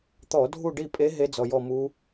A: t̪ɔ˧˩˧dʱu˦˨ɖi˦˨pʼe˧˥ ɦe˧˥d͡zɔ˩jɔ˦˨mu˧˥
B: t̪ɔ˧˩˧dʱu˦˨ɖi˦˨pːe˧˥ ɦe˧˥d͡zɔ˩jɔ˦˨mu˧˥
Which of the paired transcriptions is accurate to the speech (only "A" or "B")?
A